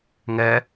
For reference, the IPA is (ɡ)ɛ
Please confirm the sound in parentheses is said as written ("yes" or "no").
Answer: no